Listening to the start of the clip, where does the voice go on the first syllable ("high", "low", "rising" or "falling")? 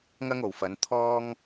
high